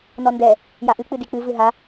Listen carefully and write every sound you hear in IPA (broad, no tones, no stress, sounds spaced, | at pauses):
n ɔ n d ɛ | j a ʔ ɨ k͡p ɨ d i k͡p ɨ v ɨ ɦ a